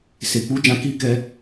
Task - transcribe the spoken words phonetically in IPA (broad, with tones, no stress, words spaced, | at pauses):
se˨ k͡pu˨˦ d͡ʒã˧ ki˦ kɛ˧